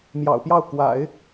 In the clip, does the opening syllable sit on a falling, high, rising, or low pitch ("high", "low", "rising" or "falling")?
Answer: low